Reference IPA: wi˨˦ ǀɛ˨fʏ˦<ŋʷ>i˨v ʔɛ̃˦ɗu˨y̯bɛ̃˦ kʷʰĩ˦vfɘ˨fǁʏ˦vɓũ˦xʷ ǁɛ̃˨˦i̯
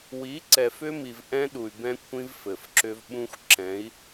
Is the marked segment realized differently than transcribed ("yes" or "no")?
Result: yes